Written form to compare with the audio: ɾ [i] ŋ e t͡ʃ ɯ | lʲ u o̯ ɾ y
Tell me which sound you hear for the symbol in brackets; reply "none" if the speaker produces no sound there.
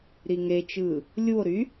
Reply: i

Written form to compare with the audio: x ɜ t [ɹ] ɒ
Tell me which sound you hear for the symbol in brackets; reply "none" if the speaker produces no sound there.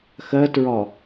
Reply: ɹ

